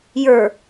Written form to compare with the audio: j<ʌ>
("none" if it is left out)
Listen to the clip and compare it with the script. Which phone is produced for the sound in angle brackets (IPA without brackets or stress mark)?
ə˞